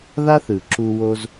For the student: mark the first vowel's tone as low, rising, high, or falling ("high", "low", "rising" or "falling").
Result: high